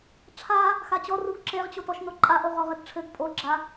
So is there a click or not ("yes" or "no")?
yes